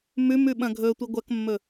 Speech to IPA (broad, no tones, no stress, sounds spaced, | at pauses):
m ʉ m ʉ ɓ ɐ̃ ɡʱ ɵ tʷ i ɡʷ ɐ k mː ɵ